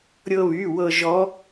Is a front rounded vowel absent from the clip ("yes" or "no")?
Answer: no